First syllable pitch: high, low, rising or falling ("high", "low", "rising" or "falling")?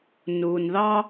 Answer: low